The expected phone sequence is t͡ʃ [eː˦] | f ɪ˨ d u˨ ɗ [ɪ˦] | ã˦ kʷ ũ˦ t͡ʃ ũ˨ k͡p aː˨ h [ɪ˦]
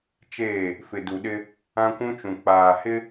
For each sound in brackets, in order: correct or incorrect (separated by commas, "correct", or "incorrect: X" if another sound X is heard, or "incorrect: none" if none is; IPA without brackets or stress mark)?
incorrect: eː˦˨, correct, correct